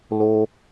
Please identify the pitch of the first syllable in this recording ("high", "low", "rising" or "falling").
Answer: low